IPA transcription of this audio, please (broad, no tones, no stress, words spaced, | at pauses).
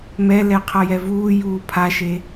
mɛlɛ qʰʌjɛvuːjuː pʰaʃe